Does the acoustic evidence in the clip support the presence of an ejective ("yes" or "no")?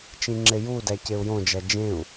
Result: no